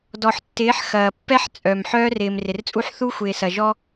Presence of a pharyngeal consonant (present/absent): present